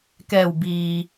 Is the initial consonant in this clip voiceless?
yes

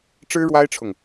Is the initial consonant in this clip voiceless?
yes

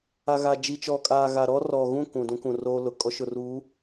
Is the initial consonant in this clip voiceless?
no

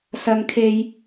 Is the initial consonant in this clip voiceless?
yes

